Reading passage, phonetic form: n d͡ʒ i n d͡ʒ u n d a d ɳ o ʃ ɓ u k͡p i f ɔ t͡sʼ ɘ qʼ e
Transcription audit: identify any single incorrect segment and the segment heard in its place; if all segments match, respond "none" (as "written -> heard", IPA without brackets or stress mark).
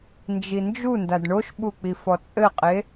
none